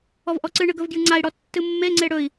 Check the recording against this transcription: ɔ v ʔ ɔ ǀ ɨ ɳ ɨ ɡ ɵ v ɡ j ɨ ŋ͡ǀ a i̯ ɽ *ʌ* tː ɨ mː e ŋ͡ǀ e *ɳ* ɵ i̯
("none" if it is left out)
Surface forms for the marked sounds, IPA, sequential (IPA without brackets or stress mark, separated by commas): ɔ, ɽ